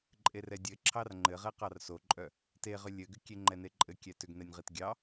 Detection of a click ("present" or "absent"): present